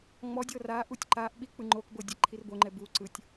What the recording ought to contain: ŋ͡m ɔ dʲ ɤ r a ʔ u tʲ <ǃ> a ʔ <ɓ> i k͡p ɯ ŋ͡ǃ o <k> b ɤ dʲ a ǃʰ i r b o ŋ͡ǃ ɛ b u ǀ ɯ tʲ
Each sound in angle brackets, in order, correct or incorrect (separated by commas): correct, correct, correct